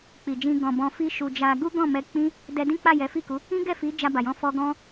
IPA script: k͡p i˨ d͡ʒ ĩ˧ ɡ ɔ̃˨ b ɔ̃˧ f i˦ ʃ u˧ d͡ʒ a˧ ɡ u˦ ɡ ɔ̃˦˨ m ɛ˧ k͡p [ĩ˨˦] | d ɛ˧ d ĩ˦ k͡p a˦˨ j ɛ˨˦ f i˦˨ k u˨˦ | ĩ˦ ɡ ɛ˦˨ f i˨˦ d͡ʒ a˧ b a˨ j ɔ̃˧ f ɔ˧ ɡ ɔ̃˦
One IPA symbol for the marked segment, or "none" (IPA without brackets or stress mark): ĩ˦